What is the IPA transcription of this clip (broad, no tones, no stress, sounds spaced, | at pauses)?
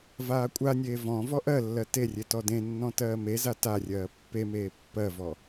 v aː kʷʼ a nʲ eː v ɔ̃ v ɔ ʔ ɜ lː ɜ t e rʲ e t ɔ d ẽ nː ɔ̃ t ɜː m e z a t a rʲ ɜː pː e m eː pː ɜ v ɔ